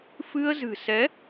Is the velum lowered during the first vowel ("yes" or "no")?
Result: no